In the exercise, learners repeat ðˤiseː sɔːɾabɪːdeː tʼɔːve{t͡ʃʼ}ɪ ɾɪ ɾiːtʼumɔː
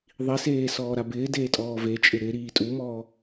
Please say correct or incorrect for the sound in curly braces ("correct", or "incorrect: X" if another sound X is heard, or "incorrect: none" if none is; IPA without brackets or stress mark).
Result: correct